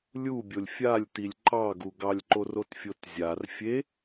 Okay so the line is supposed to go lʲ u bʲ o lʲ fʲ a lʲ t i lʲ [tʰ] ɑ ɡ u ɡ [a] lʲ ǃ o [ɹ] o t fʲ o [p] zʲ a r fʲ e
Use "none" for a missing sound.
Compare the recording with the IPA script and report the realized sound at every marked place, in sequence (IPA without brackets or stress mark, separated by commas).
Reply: ǃ, ɑ, r, t